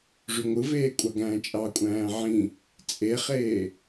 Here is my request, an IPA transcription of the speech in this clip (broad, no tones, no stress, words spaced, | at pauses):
ʐyŋʷɯveː kʷʼɑɡæ̃ːt͡ʃʼɑkʷʼæ̃ː ʕĩ | t͡sʼeχeː